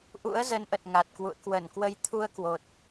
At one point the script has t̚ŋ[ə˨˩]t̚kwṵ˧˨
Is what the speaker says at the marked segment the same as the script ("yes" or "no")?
no